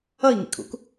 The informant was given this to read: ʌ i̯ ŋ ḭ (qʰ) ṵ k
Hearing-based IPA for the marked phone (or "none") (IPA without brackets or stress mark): kʰ